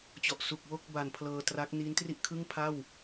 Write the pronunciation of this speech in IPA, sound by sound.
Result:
t͡ɕɔ˨˩ʔ su˨˩k̚wo˥˩k̚ ba˨˩n pʰlɤː˧tra˦˥k̚ niː˦˥ntri˥˩ʔ kʰɯ˥˩ŋpʰa˥˩w

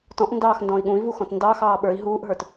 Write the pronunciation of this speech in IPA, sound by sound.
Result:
tɔ̃ʔndɑːxndɔ̃i̯ ɠũi̯vuxɔ̃t ndɑxɑː ɓə˞i̯ ɦuːʔɦə˞t

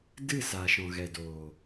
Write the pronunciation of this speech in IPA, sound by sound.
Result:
dɨ˦˨ saː˨ʃɔ̃˨ɣɛ˨ doː˨

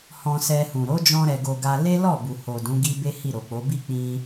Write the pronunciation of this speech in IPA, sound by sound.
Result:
hɔ̃˧sɛ˧hũ˨ ɾo˨˦d͡ʒɔ̃˧ ɾɛ˨ɡo˨ ɡa˧le˦ lɔ˦˨bu˨ho˨ dũ˨˦ɡi˦be˦ hi˦˨ɾo˨k͡po˨˦ bi˦˨k͡pĩ˧

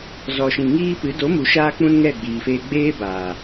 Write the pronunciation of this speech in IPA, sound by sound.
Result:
zɔ˨ʃĩ˨ŋiː˧ pɨ˨˦ do˨˦mu˨ʃaː˧ k͡pũ˦nŋɛ˦˨ɡ͡biː˨feː˧ ɡ͡beː˦ baː˨

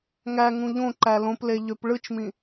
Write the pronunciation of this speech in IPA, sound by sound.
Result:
ŋæŋũ ʎõǃæ lõple ʎøpɭɯt͡ʃmĩ

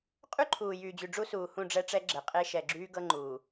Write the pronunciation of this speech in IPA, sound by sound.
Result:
qʼy˦ǃʰuː˨jyː˨d͡ʑy˨ ɖ͡ʐu˦suː˨hũ˦˨ ɖ͡ʐɛ˦ʈ͡ʂɛ˦ɡ͡ǁɛ˨ qʼe˦ʃɛ˨ ɡ͡ǁyː˦ɡɤ˦ ŋ͡ǃuː˨

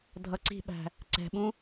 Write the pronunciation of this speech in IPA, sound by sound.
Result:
dʱʌǀi̤ɓæ̤ | ǀɛ̤ɓũ

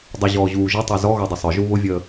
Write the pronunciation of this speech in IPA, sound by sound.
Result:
dˤʊʑɔː ʑuːʒʊtˤœ zɔɣɔ dˤəsˤœʒu βʊvʲəː

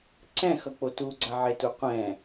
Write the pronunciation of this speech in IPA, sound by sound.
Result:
ǀɛ̃xʌk͡po tuɡ͡ǀaʕetu qʷɛ̃

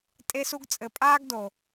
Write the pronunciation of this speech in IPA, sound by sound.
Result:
tʼe˦su˦ɡ t͡sʼɘ˨pʼaː˦ɡdo˨

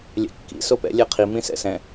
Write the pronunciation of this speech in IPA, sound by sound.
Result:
lʲɛ̰kːḭ sopɛ̰ lʲɛqʰi mĩsɛ̰sɛ̃

